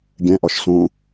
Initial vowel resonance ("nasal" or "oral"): nasal